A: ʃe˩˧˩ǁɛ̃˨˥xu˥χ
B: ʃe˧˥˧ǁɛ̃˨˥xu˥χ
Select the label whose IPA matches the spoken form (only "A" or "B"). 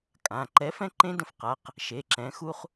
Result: A